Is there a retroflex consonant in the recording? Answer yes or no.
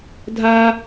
no